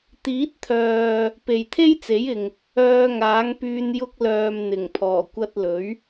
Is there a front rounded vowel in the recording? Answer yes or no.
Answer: yes